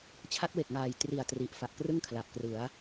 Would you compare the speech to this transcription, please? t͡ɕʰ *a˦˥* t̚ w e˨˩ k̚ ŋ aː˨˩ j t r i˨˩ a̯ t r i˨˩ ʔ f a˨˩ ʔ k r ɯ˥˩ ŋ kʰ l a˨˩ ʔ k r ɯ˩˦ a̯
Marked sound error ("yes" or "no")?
no